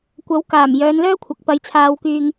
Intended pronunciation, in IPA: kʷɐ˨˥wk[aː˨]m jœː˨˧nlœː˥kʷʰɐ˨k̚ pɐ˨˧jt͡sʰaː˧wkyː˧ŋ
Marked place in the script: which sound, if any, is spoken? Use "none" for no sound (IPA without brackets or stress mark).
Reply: aː˨˩